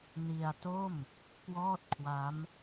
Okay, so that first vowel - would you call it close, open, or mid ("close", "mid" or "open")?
close